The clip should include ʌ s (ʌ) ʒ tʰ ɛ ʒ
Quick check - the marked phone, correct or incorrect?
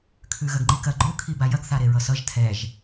correct